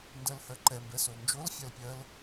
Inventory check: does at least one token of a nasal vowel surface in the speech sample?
no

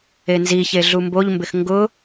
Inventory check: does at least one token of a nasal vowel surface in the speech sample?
no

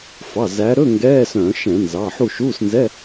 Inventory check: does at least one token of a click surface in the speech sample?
no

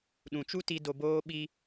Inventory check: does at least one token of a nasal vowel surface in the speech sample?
yes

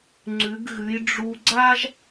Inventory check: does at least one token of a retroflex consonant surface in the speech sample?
yes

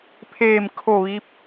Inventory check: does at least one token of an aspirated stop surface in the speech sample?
yes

